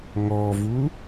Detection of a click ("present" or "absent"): absent